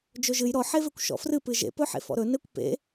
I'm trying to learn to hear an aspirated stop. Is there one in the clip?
no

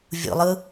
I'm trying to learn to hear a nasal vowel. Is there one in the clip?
no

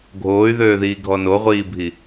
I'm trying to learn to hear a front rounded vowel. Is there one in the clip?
yes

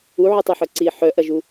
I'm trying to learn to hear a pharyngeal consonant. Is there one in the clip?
yes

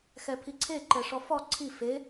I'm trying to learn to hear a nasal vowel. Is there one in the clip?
no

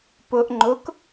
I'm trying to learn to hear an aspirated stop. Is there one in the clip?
no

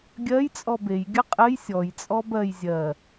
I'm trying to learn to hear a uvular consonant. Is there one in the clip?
yes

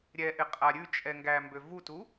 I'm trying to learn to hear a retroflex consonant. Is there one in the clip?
no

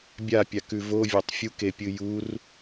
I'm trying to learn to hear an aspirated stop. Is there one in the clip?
no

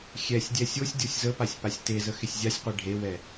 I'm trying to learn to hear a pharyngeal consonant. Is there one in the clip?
no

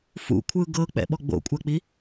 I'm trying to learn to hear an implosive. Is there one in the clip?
yes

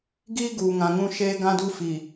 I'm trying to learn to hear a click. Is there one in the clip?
no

